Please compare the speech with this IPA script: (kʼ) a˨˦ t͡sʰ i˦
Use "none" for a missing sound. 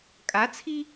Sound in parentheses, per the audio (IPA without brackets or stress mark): kʼ